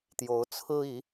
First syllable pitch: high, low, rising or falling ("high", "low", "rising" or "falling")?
rising